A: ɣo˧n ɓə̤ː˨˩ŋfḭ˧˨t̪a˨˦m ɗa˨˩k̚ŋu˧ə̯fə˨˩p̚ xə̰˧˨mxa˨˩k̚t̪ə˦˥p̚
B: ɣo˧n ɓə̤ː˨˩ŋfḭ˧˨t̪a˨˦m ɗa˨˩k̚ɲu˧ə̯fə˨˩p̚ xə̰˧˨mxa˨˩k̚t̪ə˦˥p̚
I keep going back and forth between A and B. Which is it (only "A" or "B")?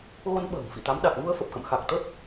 A